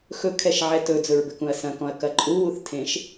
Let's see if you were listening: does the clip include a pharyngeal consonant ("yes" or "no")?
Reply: yes